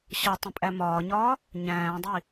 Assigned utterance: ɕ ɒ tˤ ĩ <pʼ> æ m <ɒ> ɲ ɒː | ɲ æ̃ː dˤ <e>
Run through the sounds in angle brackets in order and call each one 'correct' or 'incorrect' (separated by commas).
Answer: correct, incorrect, incorrect